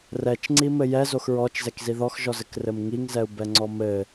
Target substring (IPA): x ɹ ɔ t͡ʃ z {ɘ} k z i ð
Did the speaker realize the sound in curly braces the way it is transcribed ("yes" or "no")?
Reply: no